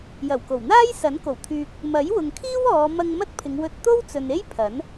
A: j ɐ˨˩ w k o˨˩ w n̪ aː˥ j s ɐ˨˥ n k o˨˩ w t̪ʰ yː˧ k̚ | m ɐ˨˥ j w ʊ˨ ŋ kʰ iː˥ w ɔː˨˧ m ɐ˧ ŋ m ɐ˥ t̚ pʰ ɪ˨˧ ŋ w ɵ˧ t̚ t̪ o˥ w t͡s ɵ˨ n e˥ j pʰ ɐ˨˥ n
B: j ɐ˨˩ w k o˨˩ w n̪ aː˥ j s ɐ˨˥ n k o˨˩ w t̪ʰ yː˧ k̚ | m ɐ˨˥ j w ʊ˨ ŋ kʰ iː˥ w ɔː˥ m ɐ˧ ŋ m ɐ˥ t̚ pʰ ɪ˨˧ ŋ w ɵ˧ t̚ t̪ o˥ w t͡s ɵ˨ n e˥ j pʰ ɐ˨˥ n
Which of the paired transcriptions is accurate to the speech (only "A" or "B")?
A